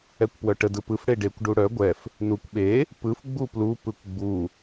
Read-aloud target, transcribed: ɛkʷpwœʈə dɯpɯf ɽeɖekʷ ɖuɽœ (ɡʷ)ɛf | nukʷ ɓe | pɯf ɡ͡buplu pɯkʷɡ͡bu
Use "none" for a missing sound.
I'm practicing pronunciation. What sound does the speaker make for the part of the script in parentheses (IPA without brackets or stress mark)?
ɡʷ